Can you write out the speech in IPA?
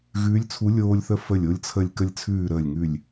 ɣ ʉː˧˥ lʲ t͡sʰ u˧˥ lʲ oː˧ lʲ θ ə˧ f ə˧˩ lʲ o˧ lʲ t͡sʰ ə˧˩ lʲ k ə˧˩ lʲ t͡sʰ ʉː˧˩ ɾ əː˧˩ lʲ ŋ ʉ˧˩ lʲ

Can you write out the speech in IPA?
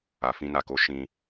a˨ f ĩ˧ n a˨ k o˨˦ ʃ ĩ˧

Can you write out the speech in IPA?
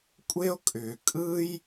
kʷʼ e˦ o̯ kʼ ʏː˨ kʼ ɯː˦ j

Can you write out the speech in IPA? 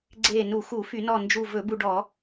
ɡ͡ǀ e˧˩ n u˧˩˧ x u˧˩˧ f y˧˩˧ n ɔ˧˩ n d͡ʒ u˧˩ v ɵ˧˩˧ b u˧˩ ɖ ɔ˧˩˧

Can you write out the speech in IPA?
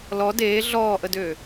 l ɔ d eː ɮ ɔː ʔ ə d øː

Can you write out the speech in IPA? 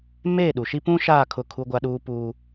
m eː˦˨ ɗ u˨ ʃ i˦ p ũ˦ ʃ aː˦˨ kʰ ʊ˦˨ kʰ u˦ ɡʷ a˦ ɗ uː˦ p uː˦

